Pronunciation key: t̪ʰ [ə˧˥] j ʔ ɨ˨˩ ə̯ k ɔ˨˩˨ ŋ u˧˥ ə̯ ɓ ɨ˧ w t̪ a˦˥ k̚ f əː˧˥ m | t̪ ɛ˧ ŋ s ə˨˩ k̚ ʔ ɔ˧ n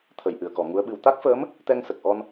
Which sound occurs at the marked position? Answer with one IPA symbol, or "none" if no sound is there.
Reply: ə˨˩˨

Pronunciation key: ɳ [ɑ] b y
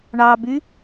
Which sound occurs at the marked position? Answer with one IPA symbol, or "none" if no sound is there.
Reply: ɑ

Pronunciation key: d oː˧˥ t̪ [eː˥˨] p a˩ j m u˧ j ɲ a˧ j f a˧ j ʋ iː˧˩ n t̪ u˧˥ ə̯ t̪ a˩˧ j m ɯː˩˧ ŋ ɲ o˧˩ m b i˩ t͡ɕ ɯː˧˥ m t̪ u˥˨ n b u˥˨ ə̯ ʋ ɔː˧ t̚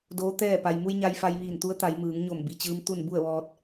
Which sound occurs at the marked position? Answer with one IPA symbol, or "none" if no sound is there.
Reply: ɛː˥˨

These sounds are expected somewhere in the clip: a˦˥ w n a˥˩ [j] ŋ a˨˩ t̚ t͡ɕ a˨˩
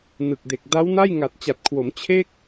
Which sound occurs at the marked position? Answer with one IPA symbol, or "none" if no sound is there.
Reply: j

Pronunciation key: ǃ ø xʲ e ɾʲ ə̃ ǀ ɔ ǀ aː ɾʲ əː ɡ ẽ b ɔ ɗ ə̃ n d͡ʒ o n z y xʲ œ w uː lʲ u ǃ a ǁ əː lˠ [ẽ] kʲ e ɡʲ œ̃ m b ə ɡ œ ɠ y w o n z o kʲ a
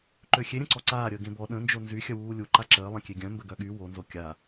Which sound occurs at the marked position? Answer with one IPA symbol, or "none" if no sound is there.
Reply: ẽ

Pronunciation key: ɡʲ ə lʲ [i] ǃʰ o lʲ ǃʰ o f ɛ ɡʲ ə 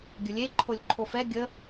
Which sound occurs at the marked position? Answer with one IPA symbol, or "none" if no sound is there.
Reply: e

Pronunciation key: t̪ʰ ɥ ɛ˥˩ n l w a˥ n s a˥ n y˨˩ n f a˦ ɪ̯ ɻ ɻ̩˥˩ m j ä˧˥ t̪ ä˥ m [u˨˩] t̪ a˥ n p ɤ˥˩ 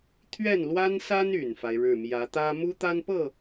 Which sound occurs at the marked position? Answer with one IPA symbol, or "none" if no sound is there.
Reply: u˥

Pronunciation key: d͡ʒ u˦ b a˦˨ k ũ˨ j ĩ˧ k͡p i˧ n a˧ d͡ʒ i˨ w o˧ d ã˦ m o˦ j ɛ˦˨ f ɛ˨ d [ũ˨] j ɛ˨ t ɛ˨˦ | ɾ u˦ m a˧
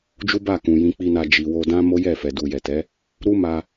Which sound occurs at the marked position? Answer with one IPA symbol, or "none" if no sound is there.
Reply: u˨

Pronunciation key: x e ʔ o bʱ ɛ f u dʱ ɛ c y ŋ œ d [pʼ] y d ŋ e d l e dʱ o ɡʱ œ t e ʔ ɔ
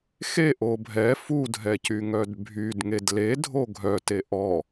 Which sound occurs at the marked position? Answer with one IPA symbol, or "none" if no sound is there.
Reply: bʱ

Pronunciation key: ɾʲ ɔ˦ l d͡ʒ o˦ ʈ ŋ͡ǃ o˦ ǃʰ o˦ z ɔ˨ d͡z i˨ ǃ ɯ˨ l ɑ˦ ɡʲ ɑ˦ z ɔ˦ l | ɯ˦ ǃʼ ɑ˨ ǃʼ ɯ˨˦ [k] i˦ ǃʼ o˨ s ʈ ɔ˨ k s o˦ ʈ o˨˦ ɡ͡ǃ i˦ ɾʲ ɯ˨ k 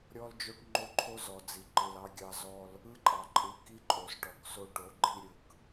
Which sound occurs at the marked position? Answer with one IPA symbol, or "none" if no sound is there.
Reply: k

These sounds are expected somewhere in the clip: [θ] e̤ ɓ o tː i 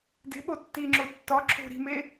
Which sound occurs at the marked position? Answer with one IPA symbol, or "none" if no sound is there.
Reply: d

